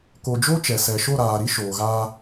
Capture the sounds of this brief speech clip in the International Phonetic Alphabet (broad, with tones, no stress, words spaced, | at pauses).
ko˨d͡ʒo˦ t͡ʃɛ˨sɛ˨ ʃo˦˨ɾaː˨ɾi˦ ʃoː˨ɣaː˦